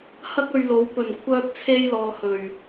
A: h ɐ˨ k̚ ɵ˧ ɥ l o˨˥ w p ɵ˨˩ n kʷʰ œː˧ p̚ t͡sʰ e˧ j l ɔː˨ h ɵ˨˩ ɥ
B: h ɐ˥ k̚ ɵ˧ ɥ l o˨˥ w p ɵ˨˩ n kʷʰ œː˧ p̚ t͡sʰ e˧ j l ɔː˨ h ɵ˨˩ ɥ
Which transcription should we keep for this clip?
B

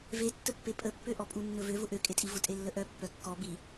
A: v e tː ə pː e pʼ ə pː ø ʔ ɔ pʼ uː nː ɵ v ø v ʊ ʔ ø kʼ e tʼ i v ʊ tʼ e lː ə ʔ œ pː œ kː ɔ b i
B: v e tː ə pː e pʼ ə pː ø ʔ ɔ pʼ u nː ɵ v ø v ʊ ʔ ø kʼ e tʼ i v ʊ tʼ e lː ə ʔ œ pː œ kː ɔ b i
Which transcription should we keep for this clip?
B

